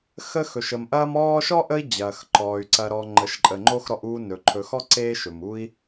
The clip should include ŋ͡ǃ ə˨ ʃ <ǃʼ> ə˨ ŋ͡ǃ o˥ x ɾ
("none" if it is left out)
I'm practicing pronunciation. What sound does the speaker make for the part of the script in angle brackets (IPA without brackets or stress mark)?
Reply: ǃʼ